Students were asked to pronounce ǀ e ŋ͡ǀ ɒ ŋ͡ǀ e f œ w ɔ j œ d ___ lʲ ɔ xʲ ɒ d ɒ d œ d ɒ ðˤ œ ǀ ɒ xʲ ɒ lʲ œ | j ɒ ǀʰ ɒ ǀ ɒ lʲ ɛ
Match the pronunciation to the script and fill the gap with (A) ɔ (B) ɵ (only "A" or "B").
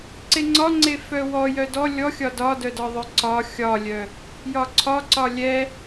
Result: A